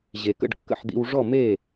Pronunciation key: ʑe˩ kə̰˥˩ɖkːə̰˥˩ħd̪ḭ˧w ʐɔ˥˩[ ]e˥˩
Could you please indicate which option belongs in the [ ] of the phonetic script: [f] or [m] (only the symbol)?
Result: m